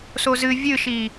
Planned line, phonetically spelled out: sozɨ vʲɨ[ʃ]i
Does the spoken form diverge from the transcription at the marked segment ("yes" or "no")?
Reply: no